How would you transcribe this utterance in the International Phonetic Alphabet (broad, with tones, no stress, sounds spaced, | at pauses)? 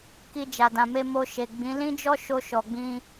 k i˧ d͡ʒ a˨ d ã˨ m e˧ m o˧ ʃ e˨ ɡ͡b ĩ˨˦ l ĩ˦ d͡ʒ ɔ˦ ʃ o˧ ʃ ɔ˨ ɡ͡b ĩ˧